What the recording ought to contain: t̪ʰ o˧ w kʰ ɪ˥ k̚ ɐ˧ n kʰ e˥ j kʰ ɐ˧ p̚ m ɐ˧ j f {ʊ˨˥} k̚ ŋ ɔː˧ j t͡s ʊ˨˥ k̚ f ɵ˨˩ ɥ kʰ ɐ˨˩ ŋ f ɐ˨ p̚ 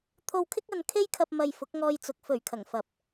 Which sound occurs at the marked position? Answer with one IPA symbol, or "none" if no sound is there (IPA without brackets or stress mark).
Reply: ʊ˨˥